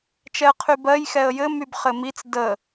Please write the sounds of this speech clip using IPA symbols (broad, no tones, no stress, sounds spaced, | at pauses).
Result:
t͡ʃ ɛ ə̯ qʰ y b ɜ j x ɛ ə̯ j ɘ m y b χ ɘ m i t͡s d ə